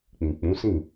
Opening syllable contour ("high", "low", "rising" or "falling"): low